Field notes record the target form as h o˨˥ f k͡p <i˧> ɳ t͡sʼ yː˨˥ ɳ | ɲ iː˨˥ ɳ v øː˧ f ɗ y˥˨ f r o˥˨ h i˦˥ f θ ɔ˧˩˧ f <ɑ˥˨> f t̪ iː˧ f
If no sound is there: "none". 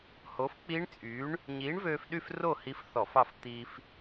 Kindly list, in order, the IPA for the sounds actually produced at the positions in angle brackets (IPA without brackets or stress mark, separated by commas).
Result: i˦˥, ɑ˥˨